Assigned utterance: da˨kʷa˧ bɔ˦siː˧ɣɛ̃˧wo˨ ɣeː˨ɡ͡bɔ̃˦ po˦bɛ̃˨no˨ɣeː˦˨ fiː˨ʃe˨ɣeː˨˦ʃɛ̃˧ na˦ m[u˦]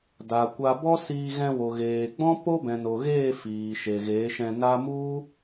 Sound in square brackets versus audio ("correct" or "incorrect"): correct